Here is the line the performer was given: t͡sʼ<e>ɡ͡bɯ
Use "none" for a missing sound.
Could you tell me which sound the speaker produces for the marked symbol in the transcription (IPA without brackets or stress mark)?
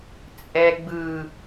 ɛ